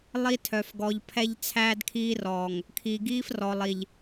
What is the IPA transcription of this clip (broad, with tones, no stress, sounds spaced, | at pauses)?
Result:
lˠ i˦ tʰ œ˨ f ɡ ɔ˨ ʎ pʰ ɛ˦ ʎ t͡sʰ æː˦ d kʰ iː˦ r ɔː˨ ŋ | kʰ iː˨ ɡ iː˦ f r ɔ˨ lˠ i˨ ʎ